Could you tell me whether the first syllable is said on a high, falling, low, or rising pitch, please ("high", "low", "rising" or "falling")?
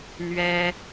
high